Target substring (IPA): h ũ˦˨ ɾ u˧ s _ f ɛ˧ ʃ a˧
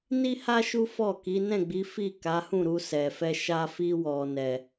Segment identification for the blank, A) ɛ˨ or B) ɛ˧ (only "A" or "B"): A